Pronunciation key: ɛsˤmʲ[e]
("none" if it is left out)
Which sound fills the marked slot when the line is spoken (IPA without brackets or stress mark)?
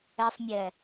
ɛ